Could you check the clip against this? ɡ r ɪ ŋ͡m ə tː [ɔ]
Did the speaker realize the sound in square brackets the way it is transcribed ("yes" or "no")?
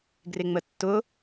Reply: no